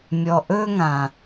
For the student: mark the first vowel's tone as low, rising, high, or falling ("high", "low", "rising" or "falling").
low